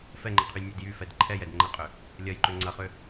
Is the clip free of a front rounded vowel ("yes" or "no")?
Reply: no